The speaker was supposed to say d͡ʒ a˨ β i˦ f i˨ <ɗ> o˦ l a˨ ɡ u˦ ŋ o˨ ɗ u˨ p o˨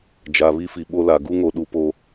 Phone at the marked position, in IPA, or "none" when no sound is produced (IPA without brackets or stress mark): ɓ